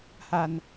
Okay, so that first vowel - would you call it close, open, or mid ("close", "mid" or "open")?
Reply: open